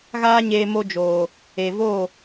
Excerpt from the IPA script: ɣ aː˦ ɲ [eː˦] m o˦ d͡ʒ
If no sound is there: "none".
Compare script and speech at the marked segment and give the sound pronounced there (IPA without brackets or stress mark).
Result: eː˧